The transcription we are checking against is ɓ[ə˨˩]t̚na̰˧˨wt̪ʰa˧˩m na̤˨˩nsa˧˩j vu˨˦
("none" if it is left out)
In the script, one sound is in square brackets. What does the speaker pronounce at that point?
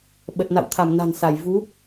ə˨˩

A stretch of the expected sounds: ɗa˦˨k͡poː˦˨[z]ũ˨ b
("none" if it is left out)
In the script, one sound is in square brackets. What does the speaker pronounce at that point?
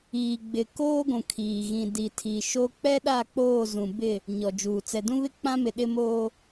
z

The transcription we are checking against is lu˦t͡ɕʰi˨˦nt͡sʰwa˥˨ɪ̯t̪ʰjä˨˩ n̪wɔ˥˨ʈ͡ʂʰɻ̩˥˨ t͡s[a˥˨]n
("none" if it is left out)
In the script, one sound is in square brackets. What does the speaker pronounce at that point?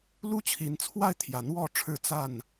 a˥˨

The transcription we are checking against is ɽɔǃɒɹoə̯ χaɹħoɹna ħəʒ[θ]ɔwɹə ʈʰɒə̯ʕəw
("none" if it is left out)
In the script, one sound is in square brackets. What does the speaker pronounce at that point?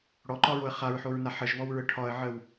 β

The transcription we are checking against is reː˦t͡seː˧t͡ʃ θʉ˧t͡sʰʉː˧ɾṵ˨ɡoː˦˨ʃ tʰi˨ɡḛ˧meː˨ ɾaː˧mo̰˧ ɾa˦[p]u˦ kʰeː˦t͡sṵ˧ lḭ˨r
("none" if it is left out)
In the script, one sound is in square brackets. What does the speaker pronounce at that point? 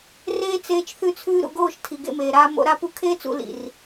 p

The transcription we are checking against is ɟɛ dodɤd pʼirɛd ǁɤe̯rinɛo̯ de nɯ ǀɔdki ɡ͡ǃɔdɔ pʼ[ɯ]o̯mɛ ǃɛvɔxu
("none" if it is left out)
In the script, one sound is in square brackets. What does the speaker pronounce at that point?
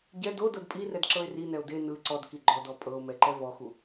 ɤ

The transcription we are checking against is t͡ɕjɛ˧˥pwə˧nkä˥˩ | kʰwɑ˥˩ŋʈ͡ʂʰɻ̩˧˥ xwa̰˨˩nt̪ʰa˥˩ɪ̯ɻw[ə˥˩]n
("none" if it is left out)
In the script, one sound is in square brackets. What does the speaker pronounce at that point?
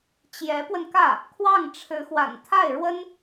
ə˥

